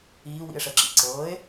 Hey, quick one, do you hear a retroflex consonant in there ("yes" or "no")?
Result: yes